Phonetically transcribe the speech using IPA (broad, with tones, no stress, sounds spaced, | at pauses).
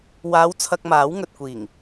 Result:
w aː˨˧ w t͡sʰ ɐ˧ k̚ m aː˨˥ w ŋ ɵ˨ t̚ kʷ iː˨˩ ŋ